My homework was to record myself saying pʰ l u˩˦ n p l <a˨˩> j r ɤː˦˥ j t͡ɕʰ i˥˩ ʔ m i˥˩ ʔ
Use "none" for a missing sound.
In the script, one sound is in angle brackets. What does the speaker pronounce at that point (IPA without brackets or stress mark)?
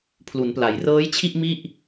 a˩˦